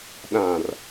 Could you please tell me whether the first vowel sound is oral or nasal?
nasal